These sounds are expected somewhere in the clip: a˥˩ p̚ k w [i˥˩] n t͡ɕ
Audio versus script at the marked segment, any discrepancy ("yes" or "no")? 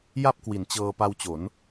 yes